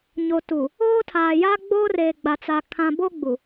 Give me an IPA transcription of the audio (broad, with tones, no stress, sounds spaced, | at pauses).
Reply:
ɲ o˨ t u˨ | oː˦ tʰ aː˨ j a˦ ɡ͡b oː˦ r eː˨ ɡ͡b a˨ t͡s a˨ kʰ ã˨ b o˦ ɡ͡b u˨